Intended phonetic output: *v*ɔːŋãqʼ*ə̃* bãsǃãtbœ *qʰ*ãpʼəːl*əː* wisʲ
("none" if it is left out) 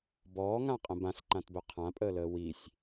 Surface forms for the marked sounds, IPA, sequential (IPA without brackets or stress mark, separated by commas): b, ə̃, qʰ, əː